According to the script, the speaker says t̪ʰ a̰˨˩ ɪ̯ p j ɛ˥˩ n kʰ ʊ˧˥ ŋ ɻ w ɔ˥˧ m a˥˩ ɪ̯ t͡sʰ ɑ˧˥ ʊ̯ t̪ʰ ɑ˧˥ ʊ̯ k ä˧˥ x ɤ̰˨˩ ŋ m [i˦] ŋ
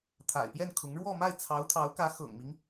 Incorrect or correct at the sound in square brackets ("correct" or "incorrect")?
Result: correct